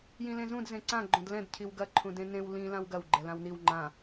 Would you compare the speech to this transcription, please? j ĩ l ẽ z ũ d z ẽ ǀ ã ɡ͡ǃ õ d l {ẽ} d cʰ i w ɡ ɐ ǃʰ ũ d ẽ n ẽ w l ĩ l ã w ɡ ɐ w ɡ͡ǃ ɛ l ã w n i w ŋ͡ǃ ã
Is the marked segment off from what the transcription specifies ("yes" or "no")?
yes